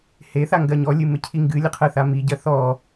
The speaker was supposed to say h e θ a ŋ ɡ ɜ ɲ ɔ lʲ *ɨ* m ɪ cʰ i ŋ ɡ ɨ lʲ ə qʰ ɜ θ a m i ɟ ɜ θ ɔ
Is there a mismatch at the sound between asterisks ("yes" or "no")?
no